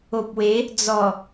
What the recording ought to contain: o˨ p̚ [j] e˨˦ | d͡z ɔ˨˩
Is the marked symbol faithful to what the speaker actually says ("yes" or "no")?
no